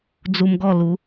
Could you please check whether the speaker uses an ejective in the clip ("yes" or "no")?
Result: no